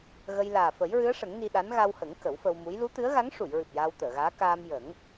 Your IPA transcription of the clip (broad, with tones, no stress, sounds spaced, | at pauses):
ɣ ə˧ j l aː˨˩ f ə˨˩˦ j ɹ ɨ˧˥ ə̯ ʂ ə˨˩˦ ŋ n i˧ ɗ a˧˥ n ɣ a˧ w h ə˨˩˦ ŋ k ə˨˩˦ w f ə˧ w m u˧˥ j l u˧˥ t̪ ɨ˧˥ ə̯ ɣ a˧˥ ŋ ʂ u˨˩˨ j ɹ ɨ˨˩ p̚ j aː˧ w t̪ əː˨˩˨ ɣ aː˧˥ k aː˧ m j ə˨˩˦ ŋ